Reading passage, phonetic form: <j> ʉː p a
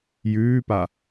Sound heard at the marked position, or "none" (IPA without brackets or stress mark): j